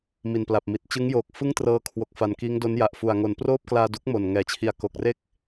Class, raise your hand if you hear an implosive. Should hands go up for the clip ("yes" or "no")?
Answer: no